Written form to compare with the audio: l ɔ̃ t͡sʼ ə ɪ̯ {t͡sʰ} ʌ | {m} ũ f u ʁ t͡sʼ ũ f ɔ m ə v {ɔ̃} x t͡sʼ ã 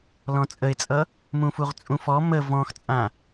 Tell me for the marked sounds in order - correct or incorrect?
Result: incorrect, correct, correct

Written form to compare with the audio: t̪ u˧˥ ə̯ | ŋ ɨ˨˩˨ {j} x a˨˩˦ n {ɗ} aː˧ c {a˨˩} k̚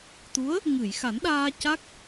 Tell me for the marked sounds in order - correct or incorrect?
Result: correct, correct, incorrect

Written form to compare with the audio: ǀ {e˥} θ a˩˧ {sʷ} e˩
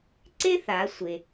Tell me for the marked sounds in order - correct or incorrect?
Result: correct, correct

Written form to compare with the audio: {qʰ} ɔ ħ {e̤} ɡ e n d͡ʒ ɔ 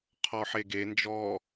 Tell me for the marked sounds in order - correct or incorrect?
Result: correct, incorrect

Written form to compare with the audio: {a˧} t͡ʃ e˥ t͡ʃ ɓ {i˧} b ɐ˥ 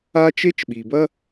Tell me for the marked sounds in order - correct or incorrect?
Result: incorrect, incorrect

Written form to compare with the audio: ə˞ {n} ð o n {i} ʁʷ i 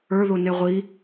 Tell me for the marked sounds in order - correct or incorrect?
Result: incorrect, incorrect

